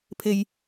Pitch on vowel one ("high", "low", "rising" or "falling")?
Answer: low